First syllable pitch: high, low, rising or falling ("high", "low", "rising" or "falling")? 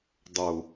low